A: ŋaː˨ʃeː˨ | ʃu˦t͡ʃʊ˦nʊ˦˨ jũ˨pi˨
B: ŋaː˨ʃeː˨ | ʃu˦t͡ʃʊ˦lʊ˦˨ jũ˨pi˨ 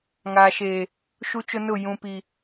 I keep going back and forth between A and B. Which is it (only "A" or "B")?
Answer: A